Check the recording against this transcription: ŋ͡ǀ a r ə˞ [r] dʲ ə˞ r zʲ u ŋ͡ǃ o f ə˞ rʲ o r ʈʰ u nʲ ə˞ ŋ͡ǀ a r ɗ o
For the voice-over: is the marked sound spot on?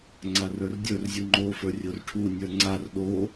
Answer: yes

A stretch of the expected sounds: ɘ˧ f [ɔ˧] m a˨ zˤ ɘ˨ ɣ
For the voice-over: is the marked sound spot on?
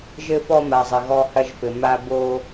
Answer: yes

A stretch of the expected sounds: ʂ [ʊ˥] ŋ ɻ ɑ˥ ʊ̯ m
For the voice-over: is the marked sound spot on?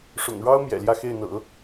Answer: no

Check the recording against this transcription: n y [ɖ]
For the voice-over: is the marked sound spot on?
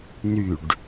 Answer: yes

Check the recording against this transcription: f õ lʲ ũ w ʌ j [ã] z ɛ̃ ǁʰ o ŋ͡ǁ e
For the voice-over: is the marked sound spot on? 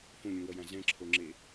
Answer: yes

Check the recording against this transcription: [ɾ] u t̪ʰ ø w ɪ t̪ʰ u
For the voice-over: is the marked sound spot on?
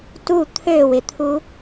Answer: no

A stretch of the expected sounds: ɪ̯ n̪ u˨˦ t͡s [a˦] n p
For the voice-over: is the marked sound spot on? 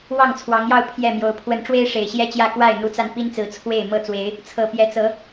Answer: no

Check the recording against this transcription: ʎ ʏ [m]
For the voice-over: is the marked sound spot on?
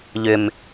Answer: yes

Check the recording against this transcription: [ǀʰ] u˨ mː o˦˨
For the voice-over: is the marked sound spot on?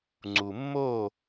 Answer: no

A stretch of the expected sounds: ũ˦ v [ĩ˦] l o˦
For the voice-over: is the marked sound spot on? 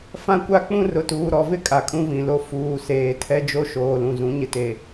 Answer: no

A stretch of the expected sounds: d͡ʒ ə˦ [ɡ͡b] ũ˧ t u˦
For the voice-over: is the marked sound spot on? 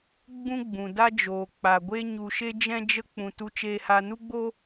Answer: no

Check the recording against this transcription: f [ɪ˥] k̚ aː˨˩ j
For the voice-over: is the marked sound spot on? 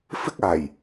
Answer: yes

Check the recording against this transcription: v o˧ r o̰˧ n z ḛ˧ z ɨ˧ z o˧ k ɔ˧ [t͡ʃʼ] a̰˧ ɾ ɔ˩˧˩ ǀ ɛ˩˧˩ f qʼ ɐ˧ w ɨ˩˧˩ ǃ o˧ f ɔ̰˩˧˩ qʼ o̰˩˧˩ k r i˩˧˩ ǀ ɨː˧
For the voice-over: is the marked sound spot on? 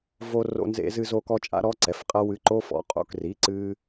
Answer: yes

